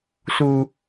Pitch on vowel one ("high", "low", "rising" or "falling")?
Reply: high